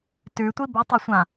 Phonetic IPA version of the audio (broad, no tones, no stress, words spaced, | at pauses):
tʉtʷi bʉtˤøsʷã